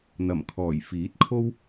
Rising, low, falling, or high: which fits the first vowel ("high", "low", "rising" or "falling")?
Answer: low